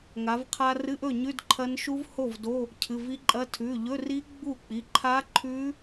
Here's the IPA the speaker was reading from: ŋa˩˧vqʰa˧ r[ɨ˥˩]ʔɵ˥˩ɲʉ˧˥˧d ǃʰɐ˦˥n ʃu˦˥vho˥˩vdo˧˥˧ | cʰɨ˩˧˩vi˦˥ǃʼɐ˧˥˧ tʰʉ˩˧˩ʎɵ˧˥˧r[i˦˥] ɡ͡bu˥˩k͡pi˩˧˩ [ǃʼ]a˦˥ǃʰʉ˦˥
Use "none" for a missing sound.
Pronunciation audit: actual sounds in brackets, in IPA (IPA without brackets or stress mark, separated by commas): ɨ˧˥˧, i˦˥, ǃʰ